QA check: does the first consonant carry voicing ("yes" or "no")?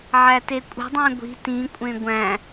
yes